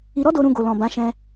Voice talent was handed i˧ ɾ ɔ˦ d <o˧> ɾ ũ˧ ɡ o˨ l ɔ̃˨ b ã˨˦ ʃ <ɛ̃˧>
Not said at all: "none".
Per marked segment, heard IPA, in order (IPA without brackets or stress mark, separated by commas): o˧, ɛ̃˧